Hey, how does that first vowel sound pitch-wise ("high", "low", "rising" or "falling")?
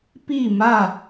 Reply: falling